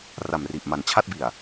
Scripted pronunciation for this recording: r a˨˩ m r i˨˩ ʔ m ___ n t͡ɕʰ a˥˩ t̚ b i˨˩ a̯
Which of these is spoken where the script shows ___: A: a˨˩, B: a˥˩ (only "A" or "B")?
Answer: A